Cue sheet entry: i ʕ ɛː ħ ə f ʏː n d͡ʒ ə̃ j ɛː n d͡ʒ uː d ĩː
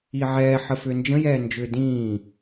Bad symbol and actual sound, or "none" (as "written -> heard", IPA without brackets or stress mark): uː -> ʏː